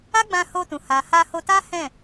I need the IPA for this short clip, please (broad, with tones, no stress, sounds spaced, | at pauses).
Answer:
a˦ ɡ͡b ã˧ h o˧ t ũ˨ h a˨ h a˧ h o˧ t a˦ h ɛ̃˦˨